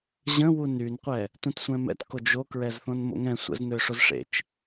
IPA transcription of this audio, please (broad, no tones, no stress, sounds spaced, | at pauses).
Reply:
ʑ ə̃ w u n y n qʷ ɛ | t ũ t sʷ ɛ̃ m ɛ̰ t k o d͡ʒ o k ɹ ɛ z θ õ n m o̰ ŋ ɛ̃ sʷ ə̰ z n̪ ø ʂ o z ʂ ḛ t͡ʃ